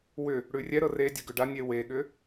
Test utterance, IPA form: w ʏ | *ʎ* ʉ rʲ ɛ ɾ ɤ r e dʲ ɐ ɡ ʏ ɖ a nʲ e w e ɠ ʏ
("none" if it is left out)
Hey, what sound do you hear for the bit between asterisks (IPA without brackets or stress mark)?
ɽ